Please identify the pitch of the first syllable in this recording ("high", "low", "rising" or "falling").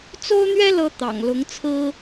high